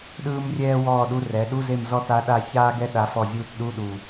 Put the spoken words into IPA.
ɗɯː˥mrʲɛː˥ wɔː˦˨ɗu˧˥˧r ɛ˩˧ɗu˧˥˧ze˦˨m zɔ˥ ta˧˥ɗa˦˨ çaː˥ɡɛ˥ ɗa˧˥fɔ˦˨zʲuː˥t ɗu˧˥˧ɗu˨˩

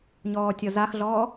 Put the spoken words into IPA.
ɲɔːtʲɔzaxɮɔː

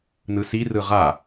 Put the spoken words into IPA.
nɯsi rɯʁa

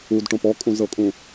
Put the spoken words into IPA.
udʈõp ɔkʼũzɤkʼũ

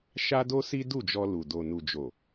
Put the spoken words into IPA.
ʃa˦do˦si˦ du˦˨d͡ʒɔ˧lu˨ do˨nu˨d͡ʒo˨

